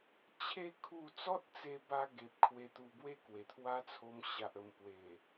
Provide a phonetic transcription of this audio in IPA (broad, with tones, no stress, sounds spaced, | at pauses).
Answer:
t͡ɕʰ e˦ kʰ u˥˧ t͡s ɔ˦ t̚ t͡s e˧ b a˧ ɡ e˨ p̚ kʰ w e˧ t̪ u˧ b w e˥˧ k w e˨˩ t̪ʰ w a˦ t͡sʰ o˧ m ɕ a˨ ʔ ə˨˩ m p w e˨˩